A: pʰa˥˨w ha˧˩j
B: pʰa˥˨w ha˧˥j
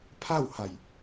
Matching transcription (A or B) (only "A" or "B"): A